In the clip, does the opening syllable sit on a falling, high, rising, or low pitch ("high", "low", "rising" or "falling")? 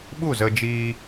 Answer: falling